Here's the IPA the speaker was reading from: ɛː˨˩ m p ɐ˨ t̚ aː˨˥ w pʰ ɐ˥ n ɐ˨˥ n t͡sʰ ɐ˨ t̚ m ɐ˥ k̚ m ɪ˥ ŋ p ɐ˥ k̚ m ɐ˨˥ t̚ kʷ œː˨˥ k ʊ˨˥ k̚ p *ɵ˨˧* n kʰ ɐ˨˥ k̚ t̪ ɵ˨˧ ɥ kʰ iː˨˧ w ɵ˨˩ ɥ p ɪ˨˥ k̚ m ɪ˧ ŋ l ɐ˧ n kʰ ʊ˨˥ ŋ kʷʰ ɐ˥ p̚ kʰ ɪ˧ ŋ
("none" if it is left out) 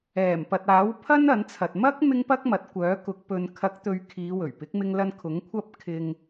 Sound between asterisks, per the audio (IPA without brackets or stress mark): ɵ˨